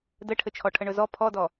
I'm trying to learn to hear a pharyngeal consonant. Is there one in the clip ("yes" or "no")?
no